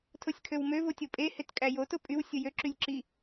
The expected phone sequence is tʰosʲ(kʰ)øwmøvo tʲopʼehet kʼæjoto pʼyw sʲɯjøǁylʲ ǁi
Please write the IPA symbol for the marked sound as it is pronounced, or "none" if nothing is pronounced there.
kʰ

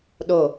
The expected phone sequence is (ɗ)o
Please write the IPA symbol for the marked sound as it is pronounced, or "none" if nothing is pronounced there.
ɗ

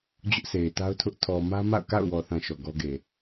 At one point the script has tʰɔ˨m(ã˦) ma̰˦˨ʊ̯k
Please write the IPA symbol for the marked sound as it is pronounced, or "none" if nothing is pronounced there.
ä˦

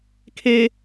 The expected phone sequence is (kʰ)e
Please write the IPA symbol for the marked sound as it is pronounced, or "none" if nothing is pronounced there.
kʰ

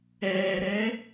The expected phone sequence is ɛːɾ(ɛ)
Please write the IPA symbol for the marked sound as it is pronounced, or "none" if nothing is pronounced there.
ɛ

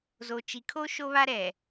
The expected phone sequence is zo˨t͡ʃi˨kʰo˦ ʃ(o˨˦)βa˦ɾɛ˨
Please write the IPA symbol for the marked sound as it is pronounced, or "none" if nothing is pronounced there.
o˦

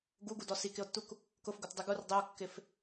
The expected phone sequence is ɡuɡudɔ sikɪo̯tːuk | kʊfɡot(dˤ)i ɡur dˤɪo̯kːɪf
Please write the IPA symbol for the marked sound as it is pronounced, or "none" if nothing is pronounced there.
dˤ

